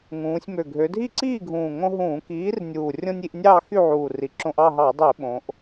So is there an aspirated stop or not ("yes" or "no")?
no